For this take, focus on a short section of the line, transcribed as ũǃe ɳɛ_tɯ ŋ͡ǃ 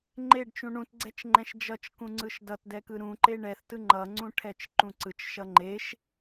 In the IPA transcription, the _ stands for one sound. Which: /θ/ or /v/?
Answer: θ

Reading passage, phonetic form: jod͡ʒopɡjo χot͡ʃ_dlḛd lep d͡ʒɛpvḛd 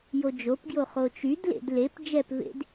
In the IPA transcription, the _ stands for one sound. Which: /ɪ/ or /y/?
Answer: y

